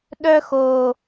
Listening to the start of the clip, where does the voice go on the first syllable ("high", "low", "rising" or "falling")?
high